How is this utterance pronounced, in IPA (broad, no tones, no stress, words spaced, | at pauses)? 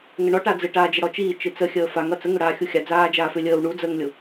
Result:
ŋəɳɔʈad͡zɨ ʈaːd͡ʒəɽɔt͡ʃiː t͡ʃɨt͡səxʲəː faŋ ʌt͡səŋʏ ɽaːxʲuxʲa d͡zaːd͡ʒaːfʏ lʲəːw ɳud͡zəːŋlʲʊ